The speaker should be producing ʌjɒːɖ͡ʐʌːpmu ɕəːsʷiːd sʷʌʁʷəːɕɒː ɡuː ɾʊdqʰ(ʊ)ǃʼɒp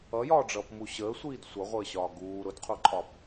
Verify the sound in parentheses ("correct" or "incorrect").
incorrect